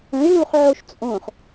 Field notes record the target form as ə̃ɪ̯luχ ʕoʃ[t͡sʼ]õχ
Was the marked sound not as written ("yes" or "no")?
no